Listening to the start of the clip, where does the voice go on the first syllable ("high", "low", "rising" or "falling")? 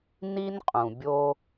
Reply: high